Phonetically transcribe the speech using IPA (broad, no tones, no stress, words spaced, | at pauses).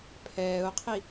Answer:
pʰɛːʊ̯qʰi